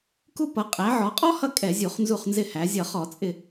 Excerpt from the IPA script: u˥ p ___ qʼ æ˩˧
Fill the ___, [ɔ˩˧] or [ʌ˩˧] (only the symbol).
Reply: ʌ˩˧